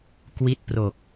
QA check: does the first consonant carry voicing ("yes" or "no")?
no